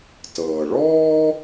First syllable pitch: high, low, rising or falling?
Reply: low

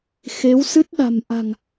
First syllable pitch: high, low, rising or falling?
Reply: rising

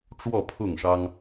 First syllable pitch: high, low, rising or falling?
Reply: falling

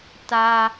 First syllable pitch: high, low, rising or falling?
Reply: high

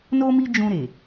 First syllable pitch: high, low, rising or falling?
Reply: high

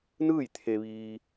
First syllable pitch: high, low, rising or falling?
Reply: falling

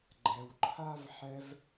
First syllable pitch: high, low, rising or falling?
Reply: low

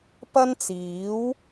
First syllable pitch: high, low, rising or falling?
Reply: high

